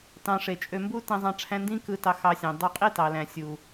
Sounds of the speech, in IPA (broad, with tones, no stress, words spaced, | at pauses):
tɑ̃˧ʂe˨ t͡ʃʼø˧mbu˦ tæ̃˧zˤɑ̃˧ʈ͡ʂʰæ̃˧ ndĩ˦kɯ˧tɑ˧ xɑ˧sʲæ̃˨ dˤu˧qʼi˦tɑ˨læ̃˨ sʲu˨